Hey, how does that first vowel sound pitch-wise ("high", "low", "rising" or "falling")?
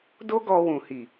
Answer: high